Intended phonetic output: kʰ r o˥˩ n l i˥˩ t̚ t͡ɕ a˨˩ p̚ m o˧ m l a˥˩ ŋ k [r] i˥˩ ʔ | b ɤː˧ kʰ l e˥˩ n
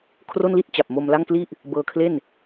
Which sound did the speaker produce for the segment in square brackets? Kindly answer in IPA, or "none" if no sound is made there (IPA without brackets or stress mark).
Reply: l